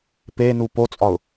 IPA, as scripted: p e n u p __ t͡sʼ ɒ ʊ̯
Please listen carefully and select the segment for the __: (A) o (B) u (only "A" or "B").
A